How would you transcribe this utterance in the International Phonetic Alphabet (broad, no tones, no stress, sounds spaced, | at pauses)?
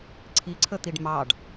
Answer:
ǀʰ i ǀʰ ə t̪ i ɖ m ɑ ɖ